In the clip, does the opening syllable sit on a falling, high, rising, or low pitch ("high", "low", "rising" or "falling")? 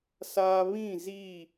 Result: high